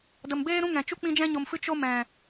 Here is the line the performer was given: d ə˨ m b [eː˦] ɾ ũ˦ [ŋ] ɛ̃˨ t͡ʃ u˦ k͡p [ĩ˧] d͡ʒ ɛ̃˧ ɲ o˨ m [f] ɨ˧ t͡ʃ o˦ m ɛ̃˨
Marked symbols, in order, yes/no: yes, yes, yes, yes

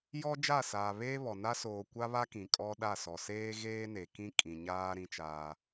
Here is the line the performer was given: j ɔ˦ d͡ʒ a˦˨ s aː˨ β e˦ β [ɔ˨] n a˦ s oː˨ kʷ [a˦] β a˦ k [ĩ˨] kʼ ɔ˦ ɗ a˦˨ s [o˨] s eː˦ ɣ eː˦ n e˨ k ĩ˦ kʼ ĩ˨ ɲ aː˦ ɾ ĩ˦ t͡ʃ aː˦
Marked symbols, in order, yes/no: yes, yes, yes, no

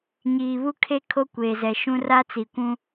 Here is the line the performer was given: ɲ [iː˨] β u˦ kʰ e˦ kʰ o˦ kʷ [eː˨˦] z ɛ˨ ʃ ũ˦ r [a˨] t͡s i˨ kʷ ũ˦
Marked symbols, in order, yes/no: yes, no, no

